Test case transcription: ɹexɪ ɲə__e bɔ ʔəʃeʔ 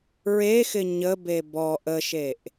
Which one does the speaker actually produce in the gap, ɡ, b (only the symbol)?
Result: b